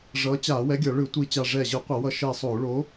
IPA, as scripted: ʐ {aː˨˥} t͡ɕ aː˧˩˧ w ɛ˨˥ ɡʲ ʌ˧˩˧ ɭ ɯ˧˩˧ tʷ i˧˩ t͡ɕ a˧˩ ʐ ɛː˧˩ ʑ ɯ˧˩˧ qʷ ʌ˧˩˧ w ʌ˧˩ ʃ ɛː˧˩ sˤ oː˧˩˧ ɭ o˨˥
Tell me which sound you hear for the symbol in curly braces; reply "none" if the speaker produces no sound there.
ʌː˨˥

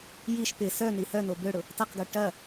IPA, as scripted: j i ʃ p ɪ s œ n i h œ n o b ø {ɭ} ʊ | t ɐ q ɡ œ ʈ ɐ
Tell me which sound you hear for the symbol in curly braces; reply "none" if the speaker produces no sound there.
ɽ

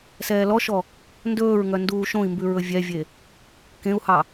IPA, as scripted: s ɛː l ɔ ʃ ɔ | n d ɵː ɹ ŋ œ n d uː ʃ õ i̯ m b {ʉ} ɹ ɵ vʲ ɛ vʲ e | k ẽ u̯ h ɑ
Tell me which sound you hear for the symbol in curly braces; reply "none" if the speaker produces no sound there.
ʉ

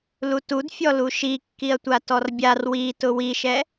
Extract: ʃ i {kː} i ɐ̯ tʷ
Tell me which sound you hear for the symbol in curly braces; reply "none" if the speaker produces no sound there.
kː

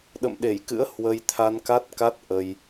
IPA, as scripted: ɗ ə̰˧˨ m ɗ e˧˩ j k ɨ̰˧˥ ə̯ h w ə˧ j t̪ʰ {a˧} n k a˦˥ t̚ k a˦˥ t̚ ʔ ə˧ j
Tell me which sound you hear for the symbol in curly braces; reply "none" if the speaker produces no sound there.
a˧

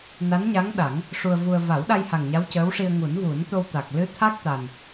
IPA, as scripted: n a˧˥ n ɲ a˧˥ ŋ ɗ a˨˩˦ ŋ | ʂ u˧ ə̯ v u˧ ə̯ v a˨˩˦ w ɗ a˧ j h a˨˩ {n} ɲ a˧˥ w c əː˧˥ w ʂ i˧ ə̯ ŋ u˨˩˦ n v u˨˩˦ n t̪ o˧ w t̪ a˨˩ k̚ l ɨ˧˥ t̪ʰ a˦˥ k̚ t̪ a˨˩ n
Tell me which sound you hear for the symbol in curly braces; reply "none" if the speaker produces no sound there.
ŋ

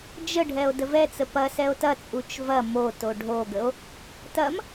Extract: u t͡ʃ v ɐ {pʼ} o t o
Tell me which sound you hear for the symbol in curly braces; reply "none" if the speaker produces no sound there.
m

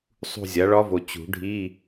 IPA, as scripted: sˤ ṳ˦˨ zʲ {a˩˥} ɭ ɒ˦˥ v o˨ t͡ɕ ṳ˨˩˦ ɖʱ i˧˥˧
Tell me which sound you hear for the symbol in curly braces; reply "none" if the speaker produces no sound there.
a˩˥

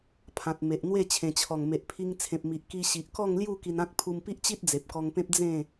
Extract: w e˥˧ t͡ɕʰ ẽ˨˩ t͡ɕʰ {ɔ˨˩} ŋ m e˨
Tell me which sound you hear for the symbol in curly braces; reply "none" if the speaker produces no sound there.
ɔ˨˩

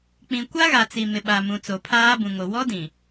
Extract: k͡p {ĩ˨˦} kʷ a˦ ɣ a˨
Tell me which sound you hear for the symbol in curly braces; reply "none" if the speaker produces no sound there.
ĩ˨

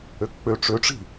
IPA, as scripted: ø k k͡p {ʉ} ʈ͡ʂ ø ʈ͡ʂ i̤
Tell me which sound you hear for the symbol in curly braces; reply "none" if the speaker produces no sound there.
ø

